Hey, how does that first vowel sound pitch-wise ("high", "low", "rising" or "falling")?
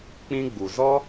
high